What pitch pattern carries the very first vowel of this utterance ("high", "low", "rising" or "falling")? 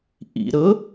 low